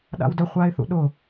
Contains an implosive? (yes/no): yes